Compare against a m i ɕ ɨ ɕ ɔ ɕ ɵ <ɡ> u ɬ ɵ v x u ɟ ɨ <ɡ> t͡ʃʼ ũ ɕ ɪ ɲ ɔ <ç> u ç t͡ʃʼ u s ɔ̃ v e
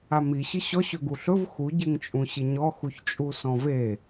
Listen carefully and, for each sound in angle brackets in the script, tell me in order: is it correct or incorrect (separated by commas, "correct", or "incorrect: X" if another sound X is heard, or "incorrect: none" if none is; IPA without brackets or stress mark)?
correct, incorrect: ŋ, incorrect: x